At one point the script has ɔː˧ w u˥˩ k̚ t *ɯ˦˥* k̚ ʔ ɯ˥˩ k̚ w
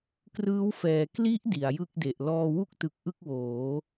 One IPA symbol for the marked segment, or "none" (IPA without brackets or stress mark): ɯ˨˩